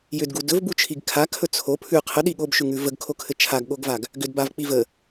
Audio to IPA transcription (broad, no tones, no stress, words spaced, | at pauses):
jʏdɡu dɵvbut͡ʃʰiɡ kʰakʰɵ t͡sʰo pʰʉ qʰəɗi ɠobʃʉŋʉ vəɡkʰokʰɘ t͡ʃʰaɡɠoɡvaɡ | ɡʏdbavk͡pi və